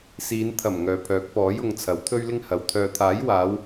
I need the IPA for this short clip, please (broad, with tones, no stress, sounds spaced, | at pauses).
s iː˨˧ n t̪ʰ ɐ˨˩ m ŋ œː˨ pʰ œː˨˥ k̚ p ɔː˨˥ j ʊ˧ ŋ t͡sʰ ɐ˨˥ w t̪ʰ ɵ˥ ɥ l ɪ˥ ŋ h ɐ˨˧ w t̪ʰ œː˨ t̪ʰ aː˨˥ j w aː˨˧ w